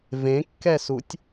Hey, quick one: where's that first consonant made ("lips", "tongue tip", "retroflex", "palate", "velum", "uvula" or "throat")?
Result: lips